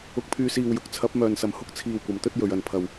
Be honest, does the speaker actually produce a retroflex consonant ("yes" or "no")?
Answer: no